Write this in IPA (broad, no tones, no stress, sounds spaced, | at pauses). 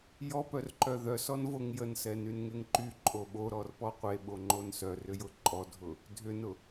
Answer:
j ɔ p œ r ǃ œ ð œ s ɔ n v o ŋ j ə n s ɛ n y n ŋ e ŋ ǃ y ǃʼ o ɓ o ɾ ɔ r p ɔ qʷ e ɓ o ŋ͡ǃ o n s œ r ʏ j ʊ ǃʼ ɔ dʱ ʊ | dʱ ʏ n ʊ